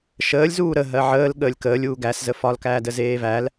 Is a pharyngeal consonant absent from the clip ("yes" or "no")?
no